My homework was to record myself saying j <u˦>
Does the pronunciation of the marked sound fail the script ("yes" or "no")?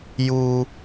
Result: no